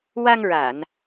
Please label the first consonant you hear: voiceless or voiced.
voiced